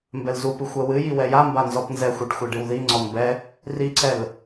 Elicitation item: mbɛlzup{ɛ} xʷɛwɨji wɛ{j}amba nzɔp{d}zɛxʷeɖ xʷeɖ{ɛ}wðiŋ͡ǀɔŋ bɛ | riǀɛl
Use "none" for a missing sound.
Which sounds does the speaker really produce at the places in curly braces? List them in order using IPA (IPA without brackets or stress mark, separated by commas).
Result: ɨ, j, n, ɨ